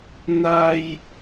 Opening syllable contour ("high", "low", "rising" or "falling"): high